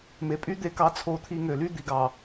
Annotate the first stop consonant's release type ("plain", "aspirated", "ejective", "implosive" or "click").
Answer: ejective